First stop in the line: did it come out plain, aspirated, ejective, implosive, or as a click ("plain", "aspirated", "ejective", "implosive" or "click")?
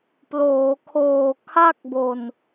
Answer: plain